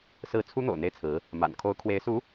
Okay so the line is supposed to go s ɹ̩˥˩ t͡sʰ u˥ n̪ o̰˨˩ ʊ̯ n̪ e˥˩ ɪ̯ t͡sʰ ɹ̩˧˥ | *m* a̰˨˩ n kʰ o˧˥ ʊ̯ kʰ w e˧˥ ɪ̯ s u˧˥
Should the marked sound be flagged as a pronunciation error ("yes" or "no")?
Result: no